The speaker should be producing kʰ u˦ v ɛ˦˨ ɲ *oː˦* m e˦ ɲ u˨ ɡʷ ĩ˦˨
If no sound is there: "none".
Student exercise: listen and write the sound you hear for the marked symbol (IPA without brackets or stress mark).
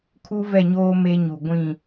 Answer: oː˦